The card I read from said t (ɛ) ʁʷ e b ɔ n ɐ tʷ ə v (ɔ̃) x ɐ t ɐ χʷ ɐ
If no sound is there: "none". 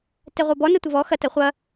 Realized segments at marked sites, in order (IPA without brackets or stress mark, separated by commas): ɛ, ɔ